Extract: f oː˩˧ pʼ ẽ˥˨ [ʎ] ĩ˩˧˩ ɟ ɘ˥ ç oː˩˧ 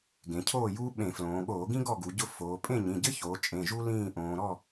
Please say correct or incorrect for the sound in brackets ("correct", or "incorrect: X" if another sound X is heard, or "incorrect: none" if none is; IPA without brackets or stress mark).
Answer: incorrect: ɲ